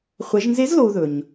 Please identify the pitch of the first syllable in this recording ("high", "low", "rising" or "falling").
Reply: rising